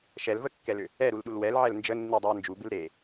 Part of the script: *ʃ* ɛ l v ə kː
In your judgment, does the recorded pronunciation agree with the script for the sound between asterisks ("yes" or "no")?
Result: yes